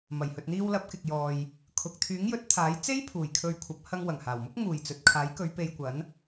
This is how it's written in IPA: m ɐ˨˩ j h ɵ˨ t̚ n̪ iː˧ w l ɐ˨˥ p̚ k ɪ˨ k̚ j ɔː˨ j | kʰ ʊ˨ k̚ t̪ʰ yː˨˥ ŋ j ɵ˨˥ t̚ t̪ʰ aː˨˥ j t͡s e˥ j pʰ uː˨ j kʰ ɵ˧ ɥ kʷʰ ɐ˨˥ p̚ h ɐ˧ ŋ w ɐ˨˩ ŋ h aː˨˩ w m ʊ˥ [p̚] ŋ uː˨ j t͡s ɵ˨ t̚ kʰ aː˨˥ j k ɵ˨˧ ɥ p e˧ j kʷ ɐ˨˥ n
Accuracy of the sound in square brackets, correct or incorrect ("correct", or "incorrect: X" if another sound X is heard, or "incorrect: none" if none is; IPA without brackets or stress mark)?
incorrect: k̚